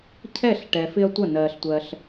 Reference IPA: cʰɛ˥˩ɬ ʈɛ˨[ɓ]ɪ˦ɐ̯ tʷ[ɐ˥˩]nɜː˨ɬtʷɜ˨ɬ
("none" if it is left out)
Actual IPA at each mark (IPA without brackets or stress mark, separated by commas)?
f, ɐ˥˩